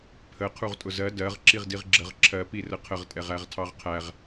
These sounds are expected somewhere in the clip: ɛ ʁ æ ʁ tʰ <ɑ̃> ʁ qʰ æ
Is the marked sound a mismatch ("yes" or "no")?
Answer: yes